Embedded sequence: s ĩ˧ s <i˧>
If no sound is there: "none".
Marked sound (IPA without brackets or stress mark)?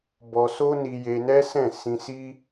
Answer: i˦